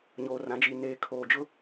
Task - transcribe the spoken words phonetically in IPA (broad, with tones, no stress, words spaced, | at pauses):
ɲoː˨rã˨˦d͡ʒi˨ neː˨kʰoː˨d͡ʒʊ˦